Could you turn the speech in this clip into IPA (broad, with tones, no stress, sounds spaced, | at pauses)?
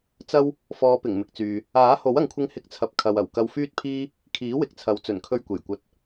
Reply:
t͡s ɐ˥ w | f ɔː˨˧ p ɪ˨˩ ŋ m ɪ˨ k̚ t͡s yː˨ | aː˨˥ h o˨˥ w ɐ˨ ŋ kʷʰ ɪ˧ ŋ h ɪ˧ k̚ t͡sʰ ɐ˨ p̚ kʰ ɐ˨ w ɐ˨˩ w k ɐ˧ w f yː˥ t̚ pʰ iː˥ | kʰ iː˨˥ w ɪ˨ k̚ t͡sʰ ɐ˨˥ w t͡s ɵ˨˩ n kʰ ɵ˧ ɥ kʷ e˨˩ j kʷ ɐ˨ t̚